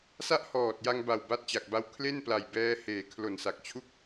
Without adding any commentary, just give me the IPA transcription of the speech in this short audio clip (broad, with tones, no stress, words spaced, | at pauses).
sa˥˩ʔhɔː˨˩t̚ja˧ŋba˨˩w ba˦˥t̚t͡ɕa˨˩k̚ba˦˥w kʰle˥˩n pla˨˩jbɛː˦˥heː˨˩ kʰlo˨˩nsa˨˩k̚t͡ɕʰu˥˩k̚